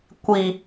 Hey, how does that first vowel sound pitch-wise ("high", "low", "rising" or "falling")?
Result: low